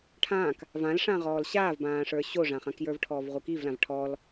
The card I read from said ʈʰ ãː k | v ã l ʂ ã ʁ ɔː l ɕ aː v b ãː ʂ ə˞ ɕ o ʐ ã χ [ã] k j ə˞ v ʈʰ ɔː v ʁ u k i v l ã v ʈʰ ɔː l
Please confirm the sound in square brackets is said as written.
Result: yes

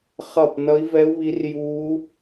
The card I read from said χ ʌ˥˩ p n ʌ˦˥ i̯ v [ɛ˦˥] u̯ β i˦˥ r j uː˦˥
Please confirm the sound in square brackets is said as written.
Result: yes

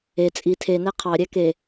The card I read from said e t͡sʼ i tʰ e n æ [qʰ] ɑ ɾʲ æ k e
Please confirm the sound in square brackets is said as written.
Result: yes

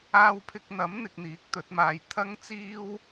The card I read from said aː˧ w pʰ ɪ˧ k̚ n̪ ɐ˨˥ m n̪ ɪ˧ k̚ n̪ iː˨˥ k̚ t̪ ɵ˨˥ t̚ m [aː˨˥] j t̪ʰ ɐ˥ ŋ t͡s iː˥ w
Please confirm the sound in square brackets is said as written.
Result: no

